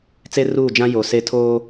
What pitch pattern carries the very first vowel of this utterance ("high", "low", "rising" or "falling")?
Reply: high